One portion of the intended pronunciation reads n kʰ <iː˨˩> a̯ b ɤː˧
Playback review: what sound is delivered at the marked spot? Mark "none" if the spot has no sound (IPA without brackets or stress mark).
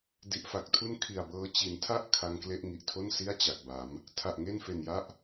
i˨˩